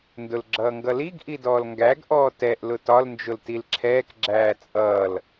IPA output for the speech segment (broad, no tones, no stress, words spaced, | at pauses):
ndʊlɡ͡ǁʌːŋɡʌliɡ ʔidɔːlŋɡæɡ ʔɔːtɛʔ lʊtɒl nd͡ʒʊltilǁʰɛːk ɡ͡ǁæːt͡sʼʌːl